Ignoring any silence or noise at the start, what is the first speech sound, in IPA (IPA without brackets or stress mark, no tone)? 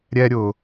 ɾʲ